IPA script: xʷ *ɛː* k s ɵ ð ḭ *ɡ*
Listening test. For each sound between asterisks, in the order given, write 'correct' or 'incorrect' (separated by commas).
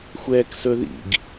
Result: correct, correct